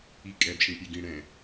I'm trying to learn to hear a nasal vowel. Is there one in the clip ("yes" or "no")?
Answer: yes